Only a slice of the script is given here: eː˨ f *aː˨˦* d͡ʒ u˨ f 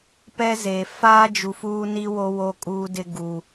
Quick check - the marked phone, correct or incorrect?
incorrect